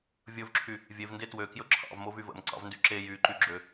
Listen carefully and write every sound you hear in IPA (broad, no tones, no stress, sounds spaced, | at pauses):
vʲ ɵ v ǁʰ y | vʲ e v n d e t w ø k j ɵ ǁʰ ɑ̰ v m o v y v ə̰ m ǀ ɑ̰ v n d y ǁ e j y ǃ y ɡ͡ǁ ø